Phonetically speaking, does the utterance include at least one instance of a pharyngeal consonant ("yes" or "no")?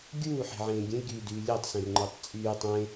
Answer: yes